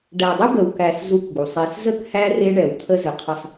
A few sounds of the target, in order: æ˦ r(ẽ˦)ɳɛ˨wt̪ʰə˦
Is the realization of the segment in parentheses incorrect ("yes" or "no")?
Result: yes